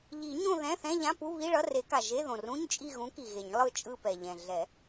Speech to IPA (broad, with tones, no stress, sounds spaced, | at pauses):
ʎ i˨˩˦ ɲ õ˦˨ ð ɛ̃˧˥˧ θ ɛ̃˧˥˧ ʎ ã˧˥˧ p u˧˥˧ β i˧˥˧ ɭ ʌ˧˥˧ r e˨˩˦ k a˩ ʒ e˧˥˧ ð õ˩ r ũ˧˥˧ ɲ t͡ʃʼ i˦˨ ɣ ũ˨˥ k i˩ ɣ e˨˩˦ ɲ lˠ ɯ˦˨ t͡ʃʼ ɯ˦˨ p ɛ˩ ʎ ɛ̃˩ ɮ ɛ˨˩˦